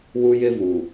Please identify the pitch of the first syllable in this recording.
high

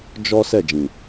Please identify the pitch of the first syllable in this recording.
high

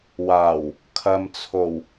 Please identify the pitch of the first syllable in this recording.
low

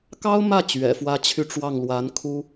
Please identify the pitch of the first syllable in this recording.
high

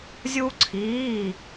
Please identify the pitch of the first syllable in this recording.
high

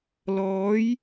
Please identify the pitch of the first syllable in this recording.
rising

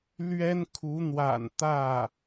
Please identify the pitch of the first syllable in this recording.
high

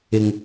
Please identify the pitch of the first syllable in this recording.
low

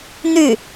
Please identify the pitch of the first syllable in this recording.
falling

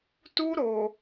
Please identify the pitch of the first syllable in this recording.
high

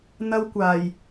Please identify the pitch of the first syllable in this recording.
high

